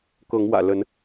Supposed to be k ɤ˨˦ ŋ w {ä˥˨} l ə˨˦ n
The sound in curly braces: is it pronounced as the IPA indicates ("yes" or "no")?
no